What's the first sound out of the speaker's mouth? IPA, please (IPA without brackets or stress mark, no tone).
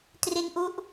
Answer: t